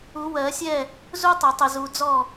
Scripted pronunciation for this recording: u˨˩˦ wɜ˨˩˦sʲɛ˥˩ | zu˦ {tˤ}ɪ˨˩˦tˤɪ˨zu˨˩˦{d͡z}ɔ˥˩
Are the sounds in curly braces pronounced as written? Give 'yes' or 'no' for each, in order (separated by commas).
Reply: yes, yes